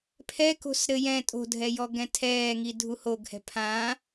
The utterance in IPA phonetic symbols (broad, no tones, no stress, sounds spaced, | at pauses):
pʰ ɛ k o̤ s ɾ ɘ j ɛ̃ tʼ o̤ dʱ ɛ j ɔ ɡ ɛ̃ tʰ ɛː ŋ i dʱ u h o ɡ h ɛ̤ pʰ ã